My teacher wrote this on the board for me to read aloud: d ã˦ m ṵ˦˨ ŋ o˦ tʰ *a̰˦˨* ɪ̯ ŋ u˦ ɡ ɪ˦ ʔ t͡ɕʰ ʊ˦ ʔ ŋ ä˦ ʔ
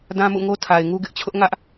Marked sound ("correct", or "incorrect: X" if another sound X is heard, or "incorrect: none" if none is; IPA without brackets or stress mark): incorrect: a˨